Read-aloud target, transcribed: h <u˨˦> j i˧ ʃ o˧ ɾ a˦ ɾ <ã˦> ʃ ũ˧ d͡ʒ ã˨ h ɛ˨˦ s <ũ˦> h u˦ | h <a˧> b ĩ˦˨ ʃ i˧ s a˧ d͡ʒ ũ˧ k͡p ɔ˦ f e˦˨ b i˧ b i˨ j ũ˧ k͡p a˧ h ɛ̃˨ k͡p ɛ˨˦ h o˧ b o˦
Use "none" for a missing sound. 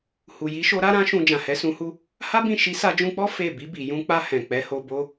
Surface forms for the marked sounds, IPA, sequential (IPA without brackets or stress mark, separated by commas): u˨, ã˦, ũ˧, a˦